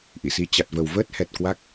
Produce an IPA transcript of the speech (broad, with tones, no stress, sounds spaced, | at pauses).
ʔ ḭ˧˨ s i˧ t͡ɕ a˨˩ t̚ v ə˨˩ w v əː˦˥ t̚ h ɛ˨˩ t̚ k w a˦˥ k̚